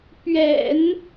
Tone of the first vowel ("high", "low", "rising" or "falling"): low